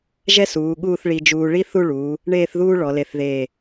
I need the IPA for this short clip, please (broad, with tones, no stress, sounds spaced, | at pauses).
ʒ ɛ˥ s uː˩˧ ɠ uː˥˧ θ ɭ i˧ d͡ʒ uː˧ ɭ i˥ θ u˥˧ ɭ uː˩˧ | ɳ eː˥˧ θ ð uː˥ ɭ ɔ˩˧ l e˧˩ θ ð eː˧˩